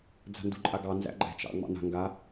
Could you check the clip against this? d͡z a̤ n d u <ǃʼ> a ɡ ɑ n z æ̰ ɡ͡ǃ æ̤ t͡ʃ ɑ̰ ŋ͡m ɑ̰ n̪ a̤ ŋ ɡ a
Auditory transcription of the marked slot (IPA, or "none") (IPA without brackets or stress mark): ǃʼ